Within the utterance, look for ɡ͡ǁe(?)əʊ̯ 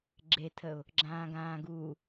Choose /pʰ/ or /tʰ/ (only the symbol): tʰ